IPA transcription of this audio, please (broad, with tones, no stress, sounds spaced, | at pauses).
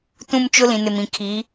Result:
t ũ˦ m t͡ʃ ʊ˦ l ĩ˨ n ɪ˨ m ĩ˨ kʰ i˨˦